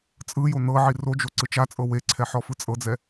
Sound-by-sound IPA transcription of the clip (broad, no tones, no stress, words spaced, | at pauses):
t͡sʼɯjo nɤʕi rod͡ʒo ǀɯt͡ʃat͡sʼɤ weǀʰɛ ħɔfɯt͡sʼɤd͡zɛ